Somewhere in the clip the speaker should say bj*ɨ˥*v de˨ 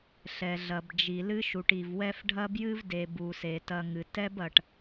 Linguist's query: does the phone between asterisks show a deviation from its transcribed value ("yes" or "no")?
no